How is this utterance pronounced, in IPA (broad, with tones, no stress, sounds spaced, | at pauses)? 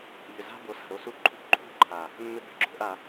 ʎ ʏ˨ z a̤˦ b o˨˦ s a̤˨ ɾ o˦ s u˦ ǃʰ ṳ˦ ǃʰ ṳ˦ ǃʰ a˨ | mː ʏ˦ b ʏ˨ ɡ͡ǁ o̤˦ ʔ a˨˦